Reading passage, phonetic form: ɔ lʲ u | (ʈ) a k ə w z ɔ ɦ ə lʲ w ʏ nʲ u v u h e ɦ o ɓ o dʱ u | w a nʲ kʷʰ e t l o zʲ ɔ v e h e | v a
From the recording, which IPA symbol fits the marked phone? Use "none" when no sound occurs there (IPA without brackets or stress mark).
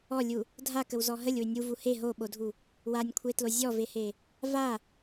dʱ